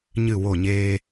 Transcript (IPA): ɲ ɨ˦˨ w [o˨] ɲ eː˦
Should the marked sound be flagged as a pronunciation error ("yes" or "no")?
yes